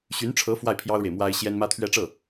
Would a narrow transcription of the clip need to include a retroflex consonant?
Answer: yes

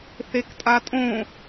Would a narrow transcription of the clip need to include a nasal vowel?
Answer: yes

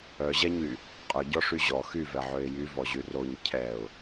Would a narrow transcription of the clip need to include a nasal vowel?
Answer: no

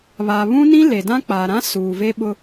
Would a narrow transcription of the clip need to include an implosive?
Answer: yes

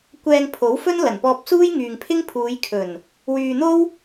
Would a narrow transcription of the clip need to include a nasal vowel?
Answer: no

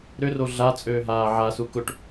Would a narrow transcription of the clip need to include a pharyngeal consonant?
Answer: yes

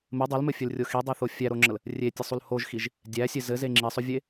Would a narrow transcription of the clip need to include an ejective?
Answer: no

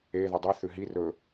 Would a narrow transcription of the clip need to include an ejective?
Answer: no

